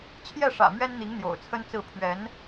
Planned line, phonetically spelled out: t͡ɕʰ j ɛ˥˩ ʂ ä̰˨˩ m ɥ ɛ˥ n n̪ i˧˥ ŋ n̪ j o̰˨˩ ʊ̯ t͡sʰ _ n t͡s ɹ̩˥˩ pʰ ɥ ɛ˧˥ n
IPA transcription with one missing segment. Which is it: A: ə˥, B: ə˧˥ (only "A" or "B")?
A